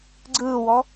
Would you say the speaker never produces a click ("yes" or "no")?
no